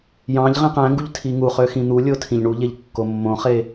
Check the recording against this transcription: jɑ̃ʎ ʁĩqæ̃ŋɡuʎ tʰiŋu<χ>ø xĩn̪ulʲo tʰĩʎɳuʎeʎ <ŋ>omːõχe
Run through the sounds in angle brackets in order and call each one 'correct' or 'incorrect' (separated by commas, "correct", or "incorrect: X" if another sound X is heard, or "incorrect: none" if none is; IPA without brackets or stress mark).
correct, incorrect: kː